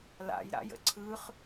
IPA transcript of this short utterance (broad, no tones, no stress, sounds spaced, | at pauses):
l a̰ j ɾ a̰ j ə̰ ǀʰ ɯ χ